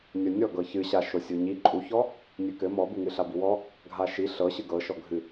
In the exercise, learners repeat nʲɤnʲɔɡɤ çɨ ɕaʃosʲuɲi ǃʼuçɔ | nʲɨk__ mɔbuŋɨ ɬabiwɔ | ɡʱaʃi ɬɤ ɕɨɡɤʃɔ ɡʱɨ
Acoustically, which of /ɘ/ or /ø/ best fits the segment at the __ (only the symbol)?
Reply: ɘ